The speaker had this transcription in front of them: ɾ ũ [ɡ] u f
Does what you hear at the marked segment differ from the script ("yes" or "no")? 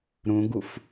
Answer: no